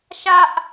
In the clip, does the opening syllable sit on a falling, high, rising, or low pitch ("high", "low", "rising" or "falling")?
high